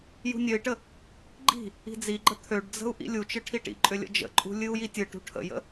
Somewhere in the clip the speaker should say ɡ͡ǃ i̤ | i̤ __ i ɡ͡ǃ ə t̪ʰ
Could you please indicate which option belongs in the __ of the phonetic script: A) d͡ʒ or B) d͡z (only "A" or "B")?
B